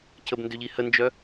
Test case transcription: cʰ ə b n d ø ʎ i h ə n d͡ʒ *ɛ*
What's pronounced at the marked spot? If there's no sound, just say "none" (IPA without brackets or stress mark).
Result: œ